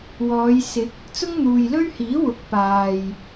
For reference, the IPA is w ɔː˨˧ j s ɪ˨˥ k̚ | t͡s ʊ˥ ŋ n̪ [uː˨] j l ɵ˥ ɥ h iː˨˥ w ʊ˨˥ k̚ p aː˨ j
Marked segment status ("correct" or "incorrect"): correct